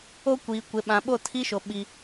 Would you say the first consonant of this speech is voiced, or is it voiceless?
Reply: voiceless